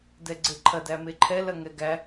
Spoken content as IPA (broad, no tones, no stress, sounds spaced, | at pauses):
d ɛ ɡ͡ǀ e ǃʰ ɐ d æ m e ǃʰ ɛ l ɐ ŋ ɛ ɡ æ